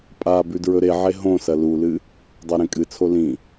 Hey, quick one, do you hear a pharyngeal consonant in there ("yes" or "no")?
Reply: yes